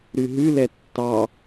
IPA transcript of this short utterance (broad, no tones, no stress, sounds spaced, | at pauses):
ɾ ʉ ɦ ʉ l ɛ tː ɑ